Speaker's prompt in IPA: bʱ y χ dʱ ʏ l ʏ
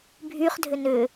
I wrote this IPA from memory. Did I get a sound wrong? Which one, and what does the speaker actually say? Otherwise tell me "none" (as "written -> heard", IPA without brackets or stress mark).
l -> n